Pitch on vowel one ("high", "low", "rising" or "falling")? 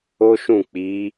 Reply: high